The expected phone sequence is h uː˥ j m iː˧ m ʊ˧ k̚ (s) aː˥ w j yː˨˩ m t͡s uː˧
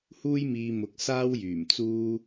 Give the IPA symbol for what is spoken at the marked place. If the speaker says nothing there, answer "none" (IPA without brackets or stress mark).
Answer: s